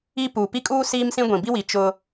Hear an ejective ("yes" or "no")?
yes